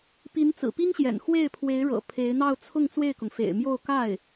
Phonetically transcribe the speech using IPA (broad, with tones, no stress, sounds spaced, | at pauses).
p i˧˥ n t͡s ɹ̩˨˩ p i˥ ŋ ɕ j ɛ̰˨˩ n x w e˥˩ ɪ̯ pʰ w e˧˥ ɪ̯ ɻ ɤ̰˨˩ pʰ e˧˥ ɪ̯ n̪ ɑ˥˧ ʊ̯ t͡sʰ ʊ˥˧ ŋ t͡s w e˥˩ ɪ̯ k ʊ˩ ŋ f ḛ˨˩ ɪ̯ m j o˥˧ ʊ̯ k a˥˩ ɪ̯